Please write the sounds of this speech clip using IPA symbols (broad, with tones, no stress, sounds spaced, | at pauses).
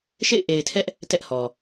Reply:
ʃ ḛ˦˨ ɪ̯ ʔ e˨ ɪ̯ tʰ ɛ˦ ʔ | t ɛ˦ ʔ h ɔ˨